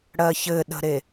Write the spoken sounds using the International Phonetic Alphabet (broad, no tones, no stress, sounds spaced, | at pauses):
ɽ ɜ ç ɘ ɗ ə̤ ɾ e